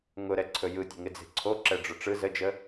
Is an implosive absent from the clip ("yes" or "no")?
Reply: yes